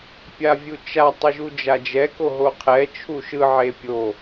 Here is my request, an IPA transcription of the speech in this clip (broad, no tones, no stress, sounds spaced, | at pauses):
pʲ a vʲ u t͡ʃ a tˤ ɯ ʒ u d͡ʒ a d͡ʒ ɛ k o ɦ o qʰ ɛ t͡ʃʰ u ʃ ɯ ʕ e pʲ o